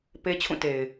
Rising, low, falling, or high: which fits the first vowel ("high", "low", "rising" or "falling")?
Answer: high